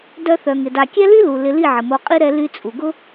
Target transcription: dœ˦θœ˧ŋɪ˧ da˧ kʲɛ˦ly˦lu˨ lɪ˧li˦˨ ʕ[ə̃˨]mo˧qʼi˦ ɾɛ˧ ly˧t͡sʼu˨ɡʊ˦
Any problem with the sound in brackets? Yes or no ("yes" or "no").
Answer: yes